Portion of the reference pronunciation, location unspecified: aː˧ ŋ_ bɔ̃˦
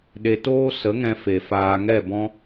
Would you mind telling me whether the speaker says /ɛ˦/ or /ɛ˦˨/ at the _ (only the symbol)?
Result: ɛ˦˨